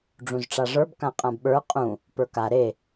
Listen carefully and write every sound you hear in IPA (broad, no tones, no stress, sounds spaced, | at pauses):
ɖ͡ʐ ũ z ʈ͡ʂ a ʐ ə˞ b k ã qʼ ã b ɓ ə˞ qʼ ũ | p ə˞ k a ɾ e